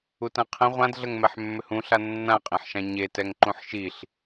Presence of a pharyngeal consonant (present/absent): present